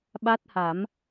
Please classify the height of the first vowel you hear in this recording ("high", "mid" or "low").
low